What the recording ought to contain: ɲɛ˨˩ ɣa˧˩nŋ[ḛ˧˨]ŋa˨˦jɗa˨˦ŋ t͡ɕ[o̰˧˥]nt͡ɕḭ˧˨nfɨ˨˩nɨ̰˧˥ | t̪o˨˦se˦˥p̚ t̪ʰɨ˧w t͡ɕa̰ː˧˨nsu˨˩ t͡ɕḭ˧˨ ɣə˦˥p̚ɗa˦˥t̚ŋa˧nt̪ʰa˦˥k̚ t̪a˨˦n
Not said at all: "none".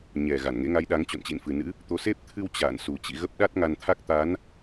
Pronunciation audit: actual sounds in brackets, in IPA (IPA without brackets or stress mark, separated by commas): ḛ˧˥, o̰˧˨